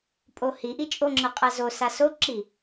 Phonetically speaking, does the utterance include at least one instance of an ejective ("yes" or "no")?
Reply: yes